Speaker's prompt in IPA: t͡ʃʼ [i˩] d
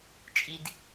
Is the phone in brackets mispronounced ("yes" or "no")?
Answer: no